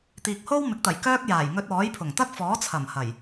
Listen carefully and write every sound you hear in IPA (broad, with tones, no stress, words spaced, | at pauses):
t̪iː˨k̚ho˥wmɪ˨˥k̚t̪ɐ˨˩j kœː˥k̚ jaː˨˩jŋɵ˧t̚ɔː˨˥jpʰʊ˨˩ŋ t̪ɐ˥k̚fɔː˨˥ t͡sʰɐ˨˩mhɐ˨˩j